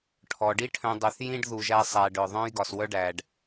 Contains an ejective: no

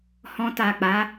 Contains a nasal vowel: yes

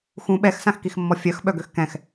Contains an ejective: no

